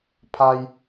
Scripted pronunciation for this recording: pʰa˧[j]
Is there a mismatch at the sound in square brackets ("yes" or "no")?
no